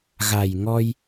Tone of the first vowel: low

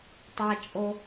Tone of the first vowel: low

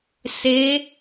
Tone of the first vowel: rising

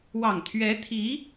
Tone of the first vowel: low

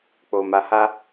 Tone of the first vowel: low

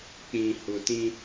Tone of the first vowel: low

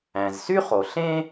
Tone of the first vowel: low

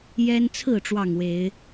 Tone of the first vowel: high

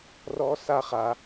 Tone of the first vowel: high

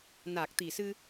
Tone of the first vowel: low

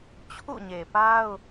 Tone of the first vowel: falling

